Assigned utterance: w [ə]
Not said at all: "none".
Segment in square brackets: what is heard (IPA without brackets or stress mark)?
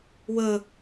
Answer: ə